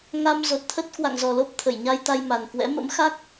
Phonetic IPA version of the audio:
ŋ a˧ m z o˨˩ t̚ t̪ʰ ə˦˥ t̚ k w a̰˧˨ ŋ z ɔ˨˩ l o˦˥ p̚ t̪ʰ ə˧˩ j ɲ a˧ j t̪ a˧ j m a˨˩ n k w ɛ̰˧˥ m ə̰˧˥ m x a˦˥ k̚

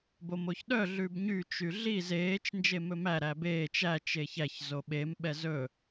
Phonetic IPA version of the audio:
b o m o ç ɗ œ ɮ ʉ b ɲ y t͡ʃ y ɮ i z eː t͡ʃ n d͡ʒ e m ɵ m æ ɾ æ b eː t͡ʃ æ t͡ʃ e ç æ ç z o ɓ e m ɓ ɛ z ɵ

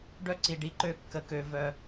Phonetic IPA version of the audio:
ɖ œ˦ ǀ i˨ ɖ i˧ ǃ ø˦˨ kː ə˧ k ø˧ v œ˧

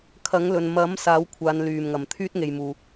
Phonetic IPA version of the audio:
kʰ ɐ˨˥ ŋ l ɵ˨ n m ɐ˨˥ m s aː˨˥ w kʷʰ aː˨˧ n l yː˨˩ m ŋ ɐ˨˩ m t̪ʰ yː˥ t̚ ŋ e˨ j m uː˨

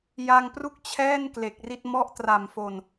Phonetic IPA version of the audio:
j a˧ ŋ p r u˥˩ k̚ t͡ɕʰ ɛː˥˩ n k l e˨˩ k̚ r i˥˩ t̚ m ɔ˦˥ ʔ t r a˨˩ m f o˨˩ n

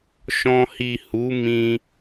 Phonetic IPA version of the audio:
ʃ ɔ̃˧ h i˨ h u˨˦ m ĩ˧

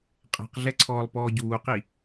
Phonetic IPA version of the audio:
qʼ ɛ̤ q ɮ ɛ ǀʰ ɔː lˠ p ɔː ɟ uː q i

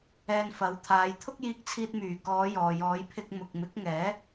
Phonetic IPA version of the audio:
ɛː˧ n f ɐ˨˥ w t̪ʰ aː˨˧ j t̪ʰ ʊ˥ k̚ j iː˧ k̚ t͡sʰ iː˧ t̚ m yː˨˩ k ɔː˨˧ j ɔː˨ j ɔː˨˧ j pʰ ɪ˧ k̚ m ʊ˨ k̚ m ɪ˨˥ k̚ ŋ ɛː˨˥

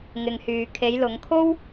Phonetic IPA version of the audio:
ŋ ɪ˨ ŋ h yː˨ kʰ e˨˧ j l ʊ˨˧ ŋ kʰ o˥ w

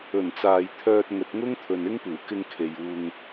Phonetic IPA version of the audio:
ɵ˨˩ n t͡s aː˨ j t̪ʰ œː˧ t̚ ŋ ɵ˨ t̚ ŋ ʊ˥ ŋ t̪ʰ ɵ˨ n ɪ˥ ŋ p uː˨˩ k ɪ˧ ŋ kʰ e˨ j uː˧ ŋ

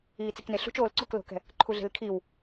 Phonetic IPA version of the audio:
iː t͡s i k n e ɬ ṳ t͡ʃ oː l ǀ o k l o̤ k ɛ̤ | ǃʰ u ɮ e̤ l kʰ i w

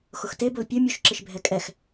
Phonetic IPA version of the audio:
x ʊ x t e b ʊ l pʲ ʊ mʲ u ʃ ǁ ɪ ʃ bʱ ɛ kʼ ɛ x

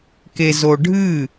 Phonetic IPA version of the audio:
k e z o ɖʱ ɨ

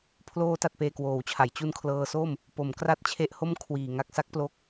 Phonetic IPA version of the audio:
pʰ l oː˧ t a˨˩ t̚ p eː˨˩ k w oː˩˦ w t͡ɕʰ a˩˦ j t͡ɕ u˧ n kʰ l ɤː˧ s o˥˩ m | p o˩˦ m k r a˦˥ t̚ t͡ɕʰ e˦˥ ʔ h o˥˩ m kʰ w iː˨˩ ŋ a˥˩ k̚ s a˦˥ k̚ p l o˦˥ k̚

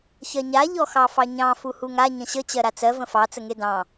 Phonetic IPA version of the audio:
ç ɜ ɲ a ʎ ɔ x ɑ f ɑ ɲ ɑ̃ f u h u ŋ a ɲ ə̃ ɕ ə t͡ɕ ɜ ɾ a t͡s ɜ v ə̃ f ɑ t͡s ə ŋ e d ɑ̃

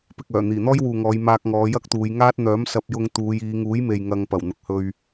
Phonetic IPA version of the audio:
p ɪ˨ k̚ œː˨˩ n̪ iː˨˩ n̪ ɔː˥ j w uː˨ ŋ ɔː˨˧ j m aː˧ k̚ ŋ ɔː˨˧ j ɐ˥ k̚ t̪ uː˨˧ j ŋ aː˥ t̚ n̪ œː˨˥ m s ɐ˧ p̚ j ʊ˧ ŋ t̪ uː˨˧ j iː˨˧ ŋ uː˨˥ j m e˨ j ŋ ɐ˧ ŋ p ɐ˨˩ w n̪ ʊ˨ k̚ h ɵ˧ ɥ

